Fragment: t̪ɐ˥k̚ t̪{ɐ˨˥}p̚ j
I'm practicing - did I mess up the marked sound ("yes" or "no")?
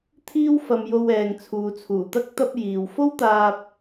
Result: yes